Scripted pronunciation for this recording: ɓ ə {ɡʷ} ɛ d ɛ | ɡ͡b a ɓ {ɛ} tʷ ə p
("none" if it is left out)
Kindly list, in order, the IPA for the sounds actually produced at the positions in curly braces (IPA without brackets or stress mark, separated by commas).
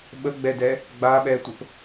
ɡ͡b, ɛ